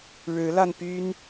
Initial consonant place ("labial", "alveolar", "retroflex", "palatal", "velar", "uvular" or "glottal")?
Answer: retroflex